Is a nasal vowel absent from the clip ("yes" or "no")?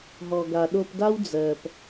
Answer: yes